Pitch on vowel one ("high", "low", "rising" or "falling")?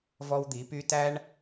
high